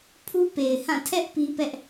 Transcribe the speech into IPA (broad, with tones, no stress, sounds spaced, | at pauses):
pʰ u˦ p e˨ ɪ̯ h ã˦˨ tʰ ɛ˦ ʔ p i˦ p ɛ˦ ʔ